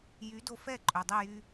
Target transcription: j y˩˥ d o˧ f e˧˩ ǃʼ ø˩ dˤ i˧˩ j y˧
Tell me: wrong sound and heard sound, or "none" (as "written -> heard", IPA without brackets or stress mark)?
e˧˩ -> ɛ˧˩